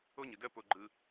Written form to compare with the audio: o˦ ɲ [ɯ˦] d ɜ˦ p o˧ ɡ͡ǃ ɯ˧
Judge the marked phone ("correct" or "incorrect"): incorrect